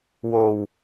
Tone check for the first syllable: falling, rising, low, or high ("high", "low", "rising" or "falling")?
low